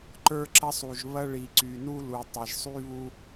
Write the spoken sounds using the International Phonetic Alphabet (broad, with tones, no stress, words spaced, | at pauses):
ǃə˞˦ǁɐ˦sˤu˨ʒβɐ˦ ɭi˨ǀy˨nu˦lu˨ tˤɐ˨ʒsˤy˦βu˦